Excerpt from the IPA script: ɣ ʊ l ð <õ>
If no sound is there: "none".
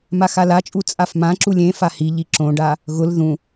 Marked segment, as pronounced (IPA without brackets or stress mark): ũ